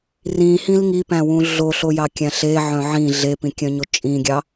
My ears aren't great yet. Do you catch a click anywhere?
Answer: no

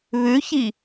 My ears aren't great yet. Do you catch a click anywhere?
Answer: no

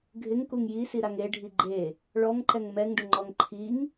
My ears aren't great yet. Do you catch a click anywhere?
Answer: yes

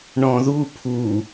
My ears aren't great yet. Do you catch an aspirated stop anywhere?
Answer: yes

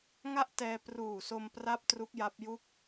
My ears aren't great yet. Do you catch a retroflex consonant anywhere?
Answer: no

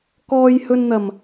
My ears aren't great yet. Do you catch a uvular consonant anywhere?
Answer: no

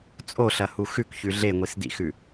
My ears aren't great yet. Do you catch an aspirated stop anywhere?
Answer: no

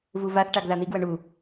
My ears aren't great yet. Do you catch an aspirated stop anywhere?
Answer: no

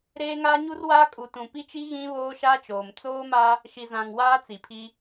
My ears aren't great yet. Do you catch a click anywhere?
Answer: no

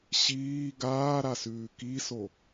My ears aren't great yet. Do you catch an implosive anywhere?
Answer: no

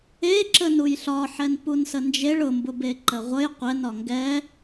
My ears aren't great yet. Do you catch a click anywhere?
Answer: yes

